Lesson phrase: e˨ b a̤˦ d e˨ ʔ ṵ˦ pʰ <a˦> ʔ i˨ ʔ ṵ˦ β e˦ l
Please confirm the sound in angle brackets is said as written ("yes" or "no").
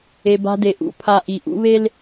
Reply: yes